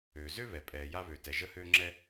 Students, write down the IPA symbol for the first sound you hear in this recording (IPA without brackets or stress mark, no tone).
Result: øː